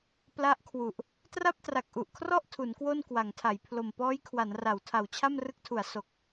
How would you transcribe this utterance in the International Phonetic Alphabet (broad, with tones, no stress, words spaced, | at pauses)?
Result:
pla˦˥ʔkʰwu˨˩ʔ | tra˥˩p̚tra˨˩k̚ʔu˨˩ʔkʰrɔ˥˩ʔ tʰu˩˦nkwo˥˩nkwa˩˦ŋtʰa˩˦j pʰlo˨˩mpɔː˦˥jkʰwa˩˦nra˩˦w tʰa˨˩wt͡ɕʰa˥˩mrɯ˦˥k̚tʰu˩˦a̯ so˨˩k̚